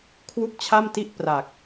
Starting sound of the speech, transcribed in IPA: kʰ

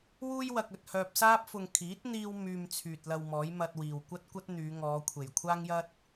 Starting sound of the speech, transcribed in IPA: w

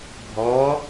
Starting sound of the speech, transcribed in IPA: bʱ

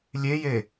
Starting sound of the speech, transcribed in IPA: lʲ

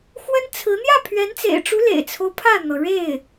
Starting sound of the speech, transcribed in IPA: x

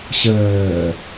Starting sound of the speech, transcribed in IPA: ɕ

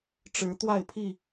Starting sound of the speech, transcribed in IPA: ʈ͡ʂ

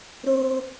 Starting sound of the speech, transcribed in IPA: ɾ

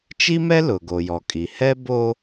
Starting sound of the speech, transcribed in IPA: t͡ʃ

